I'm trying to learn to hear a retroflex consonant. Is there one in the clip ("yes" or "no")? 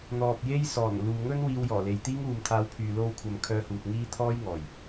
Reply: no